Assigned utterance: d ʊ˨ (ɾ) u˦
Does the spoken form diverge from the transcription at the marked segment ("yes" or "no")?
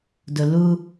yes